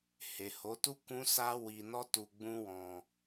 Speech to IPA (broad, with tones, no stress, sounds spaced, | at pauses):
h e˨ h o˨˦ t u˦ k ũ˦ s a˦ w i˧ n ɔ˦ t u˧ ɡ͡b ũ˦ w ɔ̃˧